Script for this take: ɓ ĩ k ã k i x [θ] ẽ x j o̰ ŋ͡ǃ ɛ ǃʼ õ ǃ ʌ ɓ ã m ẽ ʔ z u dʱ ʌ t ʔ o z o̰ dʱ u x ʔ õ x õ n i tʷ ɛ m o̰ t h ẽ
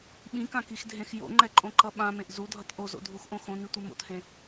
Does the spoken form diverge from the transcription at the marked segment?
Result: yes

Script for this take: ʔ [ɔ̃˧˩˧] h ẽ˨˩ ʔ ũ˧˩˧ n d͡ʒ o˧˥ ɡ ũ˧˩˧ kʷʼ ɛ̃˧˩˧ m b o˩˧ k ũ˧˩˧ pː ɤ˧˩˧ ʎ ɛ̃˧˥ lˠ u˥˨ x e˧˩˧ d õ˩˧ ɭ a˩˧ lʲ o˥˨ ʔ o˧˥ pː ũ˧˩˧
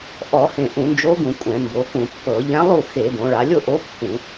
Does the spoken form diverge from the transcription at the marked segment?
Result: yes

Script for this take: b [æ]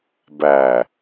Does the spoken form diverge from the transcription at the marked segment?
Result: no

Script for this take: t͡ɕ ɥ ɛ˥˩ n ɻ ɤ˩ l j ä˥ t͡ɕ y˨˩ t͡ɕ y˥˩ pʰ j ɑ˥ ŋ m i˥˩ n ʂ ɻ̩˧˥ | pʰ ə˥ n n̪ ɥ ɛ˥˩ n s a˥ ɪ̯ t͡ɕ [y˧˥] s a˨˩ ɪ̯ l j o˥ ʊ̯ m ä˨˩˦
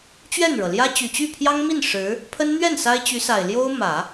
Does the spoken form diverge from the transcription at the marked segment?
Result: no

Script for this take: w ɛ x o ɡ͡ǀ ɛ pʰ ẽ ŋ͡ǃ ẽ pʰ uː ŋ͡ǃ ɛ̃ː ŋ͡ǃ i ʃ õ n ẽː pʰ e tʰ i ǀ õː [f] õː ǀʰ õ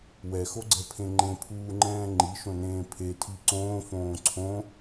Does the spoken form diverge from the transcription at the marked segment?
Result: no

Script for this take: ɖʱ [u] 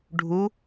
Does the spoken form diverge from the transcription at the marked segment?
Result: no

